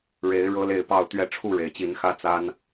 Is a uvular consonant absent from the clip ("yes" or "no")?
yes